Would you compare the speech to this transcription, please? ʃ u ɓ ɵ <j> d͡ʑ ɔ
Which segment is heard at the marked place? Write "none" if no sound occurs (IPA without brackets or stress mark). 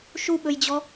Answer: j